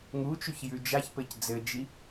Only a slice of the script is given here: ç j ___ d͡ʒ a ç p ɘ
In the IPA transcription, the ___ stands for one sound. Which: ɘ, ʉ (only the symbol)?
ʉ